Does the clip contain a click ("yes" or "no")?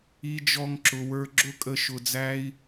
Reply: yes